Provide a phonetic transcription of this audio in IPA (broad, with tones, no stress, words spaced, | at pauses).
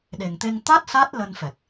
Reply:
ɗe˨˩ŋt̪e˧ŋ t̪a˦˥t̚ sa˦˥t̚ lə˧nfɛ˨˩k̚